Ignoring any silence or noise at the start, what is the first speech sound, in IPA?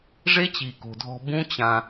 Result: ʐ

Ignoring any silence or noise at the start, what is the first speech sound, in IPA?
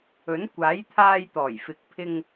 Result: ɵ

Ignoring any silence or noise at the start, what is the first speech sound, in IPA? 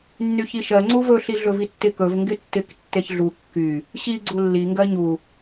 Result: nː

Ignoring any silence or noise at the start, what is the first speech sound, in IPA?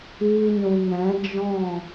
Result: iː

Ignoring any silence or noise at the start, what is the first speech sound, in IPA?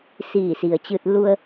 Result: s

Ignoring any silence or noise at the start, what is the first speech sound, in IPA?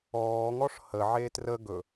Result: ɔː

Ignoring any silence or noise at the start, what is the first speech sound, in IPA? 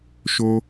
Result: ʃ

